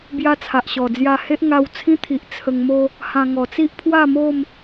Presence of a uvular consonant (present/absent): absent